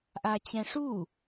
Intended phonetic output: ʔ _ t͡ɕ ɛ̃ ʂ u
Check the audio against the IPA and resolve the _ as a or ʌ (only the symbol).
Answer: a